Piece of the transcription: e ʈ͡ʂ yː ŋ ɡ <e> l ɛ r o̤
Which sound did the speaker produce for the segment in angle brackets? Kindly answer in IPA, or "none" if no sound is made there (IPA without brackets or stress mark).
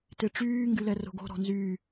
y